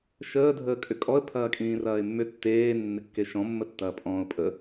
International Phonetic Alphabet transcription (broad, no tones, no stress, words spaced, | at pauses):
ʃəː dʱəːkʼʏkʼɔə̯ pʰɐːkʼĩːrɐːɪ̯mːʏ tːeː nːɪkːeʃɔ̃ mːətːɐːpʼɔ̃ːʊ̯pʼə